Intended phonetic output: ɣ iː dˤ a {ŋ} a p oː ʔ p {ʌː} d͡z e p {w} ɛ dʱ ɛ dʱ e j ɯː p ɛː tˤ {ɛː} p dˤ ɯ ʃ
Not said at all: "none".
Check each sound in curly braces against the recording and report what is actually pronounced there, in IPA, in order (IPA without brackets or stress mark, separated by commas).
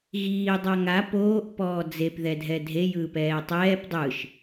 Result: ŋ, ɔː, ð, ɛː